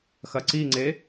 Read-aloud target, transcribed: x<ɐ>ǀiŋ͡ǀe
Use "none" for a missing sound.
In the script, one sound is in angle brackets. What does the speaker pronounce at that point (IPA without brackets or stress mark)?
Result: ɐ